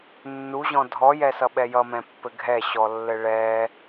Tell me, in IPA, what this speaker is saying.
nːuʑɔ̃ dʱɔjɛsʌɓɛ jʌmɛ̃pːɘ ɡʱɛɕɔlːɘ ɭɛ

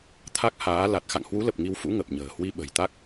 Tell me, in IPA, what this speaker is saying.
t̪ʰa˦˥k̚haː˨˦ la˨˩t̚ xa̰˧˨ŋhwu˨˦lə˨˩p̚ ŋi˧wfṵ˧˥ ŋə˨˩p̚ɲə̤ː˨˩ hwi˧ɓə̤˨˩jt̪a˦˥k̚

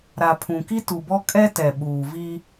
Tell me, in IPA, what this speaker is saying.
ɾa˨pʰũ˨ki˦ tu˨bɔ˦ kʼɛ˦tɛ˨ɓuː˨ vi˦

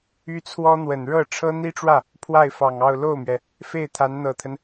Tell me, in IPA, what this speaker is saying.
y˥t͡sʰwɔ˥n̪wə˨˩n ɻɤ˥˩ ʈ͡ʂʰɤ˥n̪i˥ʈ͡ʂwä˥˩ | pʰwa˥˩ɪ̯fɑ˨˩ŋɑ˥˧ʊ̯ lo˥˩ʊ̯mɥɛ˩ | fe˥˩ɪ̯t̪ʰa˧˥nn̪ɤ˨˩t̪ʰə˦n

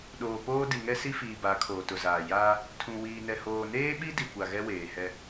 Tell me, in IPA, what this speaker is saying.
ɗoː˨poː˦ di˨ŋɛ˦si˦fiː˨ ba˨˦kʰoː˨ tʊ˨zaː˨ jaː˦ | tʰũ˨ wiː˨nɛ˨ hoː˨neː˦ɓi˦ di˨kʷa˨ɣɛ˦ weː˨hɛ˦

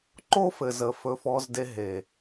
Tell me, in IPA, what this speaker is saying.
ǃo˦fɘ˨zə˨ fɵ˧f ɔ˧zde˧ ɦe˨

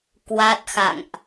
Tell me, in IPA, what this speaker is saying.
kwa˦˥t̚xa̰˧˨ŋʔ

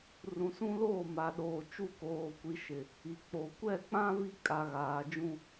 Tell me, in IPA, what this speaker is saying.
rũ˨sũ˦loː˦˨ma˨ ɗoː˨ t͡ʃu˦˨koː˨kʷi˨ ʃɪ˨ | i˨k͡po˨ kʷɛ˦˨k͡pã˦ vi˦kʼa˨ ɣaː˨d͡ʒũ˦

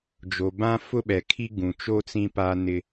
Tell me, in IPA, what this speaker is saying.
d͡ʒo˨bã˦ fʊ˦ɓɛ˨kʰi˦ ɡũ˨t͡ʃo˦ t͡sĩ˦pa˦nɪ˦

